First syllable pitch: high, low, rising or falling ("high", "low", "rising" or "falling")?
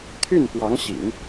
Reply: falling